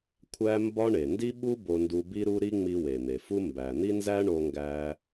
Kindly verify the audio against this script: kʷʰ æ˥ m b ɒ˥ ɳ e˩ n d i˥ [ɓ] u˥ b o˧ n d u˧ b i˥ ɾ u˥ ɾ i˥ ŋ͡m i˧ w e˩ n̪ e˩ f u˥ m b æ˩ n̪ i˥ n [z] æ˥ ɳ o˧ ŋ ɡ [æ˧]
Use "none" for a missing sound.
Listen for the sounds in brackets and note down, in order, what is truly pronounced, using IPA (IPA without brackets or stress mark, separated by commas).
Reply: ɓ, z, æ˧